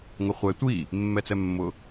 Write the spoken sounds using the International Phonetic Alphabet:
ŋ ʊ χʷ ɛ tʷ i | mː ɛ t͡s ɛ mː ʊ

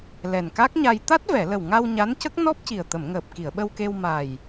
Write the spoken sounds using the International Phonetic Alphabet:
l ɛ˨˩ n k a˦˥ k̚ ɲ a˧ j t̪ a˦˥ t̚ v ɛ˨˩˨ l ə˨˩ w ŋ a˧ w ɲ a˧˥ n c ə˦˥ k̚ n ɔ˦˥ p̚ c i˨˩ ə̯ t̪ ə˨˩˨ m ŋ əː˨˩ p̚ k i˨˩˨ ə̯ ɓ ə˧ w k e˧ w m a˨˩ j

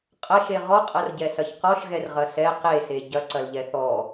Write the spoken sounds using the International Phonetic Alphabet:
qʼ ɐ ʃ e ʁ ɔ qʼ ɐ r ɟ ɛ s ɐ ç q ɔ ʃ ɣ ɛ r ʁ ɐ s ɛ q e s e ɟ ɐ ǀ ɐ l ʎ ɛ θ ɔ

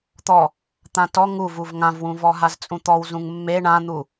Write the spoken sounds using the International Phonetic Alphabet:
t̪ ɔ | t̪ ã t ɔ ŋ u v u v ŋ ã v w ũ v ɔ ɦ a z t͡sʼ ũ t̪ ɔ w z ũ ŋ mː e ɳ ã n̪ u

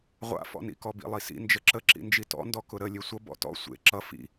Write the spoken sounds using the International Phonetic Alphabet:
ʁʷ a̰ f ɔ̰ n ḭ k ɔ b ḭ lˠ i s ḭ n d͡ʒ ə ǁ ə ǁ ḭ n d͡ʒ i t ɔ̰ n d ɔ k ʊ ɾ ə lʲ e sʷ ʌ b ɔ̰ t ɔ̰ sʷ ḛ ǁ ʌ f ḭ

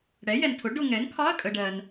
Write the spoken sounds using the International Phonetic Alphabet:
ɽ ɛ˩˥ j ɛ˨ n tʰ ʊ˩˥ ɖ ʊ˨ ŋ ɛ˩˥ n kʰ ɒ˧˥˧ ɐ̯ kʼ ə˨ ɖ ɜ˨ n

